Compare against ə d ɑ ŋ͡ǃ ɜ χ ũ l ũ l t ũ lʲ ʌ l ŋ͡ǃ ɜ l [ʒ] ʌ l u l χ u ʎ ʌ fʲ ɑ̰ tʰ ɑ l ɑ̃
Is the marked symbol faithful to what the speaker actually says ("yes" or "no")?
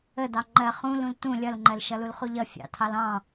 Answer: no